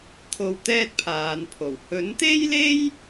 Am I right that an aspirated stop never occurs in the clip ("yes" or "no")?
no